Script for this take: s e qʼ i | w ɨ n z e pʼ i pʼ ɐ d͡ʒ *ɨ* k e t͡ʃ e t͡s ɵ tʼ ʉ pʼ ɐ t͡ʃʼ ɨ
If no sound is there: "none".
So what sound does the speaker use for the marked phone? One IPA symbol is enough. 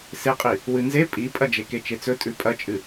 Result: e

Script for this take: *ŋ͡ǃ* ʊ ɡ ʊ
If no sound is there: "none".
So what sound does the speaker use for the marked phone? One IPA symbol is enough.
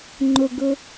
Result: ŋ͡ǃ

